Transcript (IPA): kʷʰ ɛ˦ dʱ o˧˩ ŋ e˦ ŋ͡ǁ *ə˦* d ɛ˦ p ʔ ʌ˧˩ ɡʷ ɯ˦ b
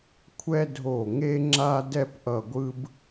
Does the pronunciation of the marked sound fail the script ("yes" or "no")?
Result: yes